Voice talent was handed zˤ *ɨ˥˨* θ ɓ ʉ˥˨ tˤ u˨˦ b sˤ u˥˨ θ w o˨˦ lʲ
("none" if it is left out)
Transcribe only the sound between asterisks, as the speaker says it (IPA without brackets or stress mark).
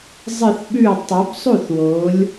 ɨ˥˨